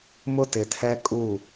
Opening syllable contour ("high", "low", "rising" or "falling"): high